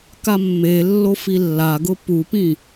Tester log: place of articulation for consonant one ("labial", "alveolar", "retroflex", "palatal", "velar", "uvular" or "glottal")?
velar